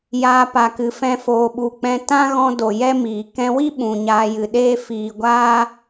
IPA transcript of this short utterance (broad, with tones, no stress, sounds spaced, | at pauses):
j aː˧ p a˨ k ɨ˨ f ɛ̃˧ f oː˨ ɓ u˨ k͡p ɛ̃˧ t ã˦ ɣ ɔ̃˧ d o˨ j ɛ˦ m iː˨ k ɛ̃˧ w i˦ ɓ ũ˨ ɲ aː˧ j ɨ˨ ɗ eː˦ f iː˨ ɡʷ aː˦